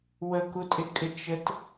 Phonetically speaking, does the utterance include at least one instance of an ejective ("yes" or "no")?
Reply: yes